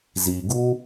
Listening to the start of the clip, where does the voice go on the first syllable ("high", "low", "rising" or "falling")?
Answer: low